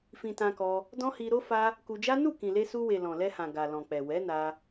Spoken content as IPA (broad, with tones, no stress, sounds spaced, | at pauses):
f ĩ˧ t ã˧ k ɔ˧ | d ɔ̃˦ h i˧ ɾ o˦ f a˦ | k u˧ d͡ʒ a˦ n u˦˨ k ĩ˨ l e˧ s u˧ w e˨ l ɔ̃˨ l ɛ˧ h ã˨ ɡ a˨ l ɔ̃˨ k͡p ɛ˨ w ɛ˨˦ n a˧